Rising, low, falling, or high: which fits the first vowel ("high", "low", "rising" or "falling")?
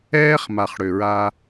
high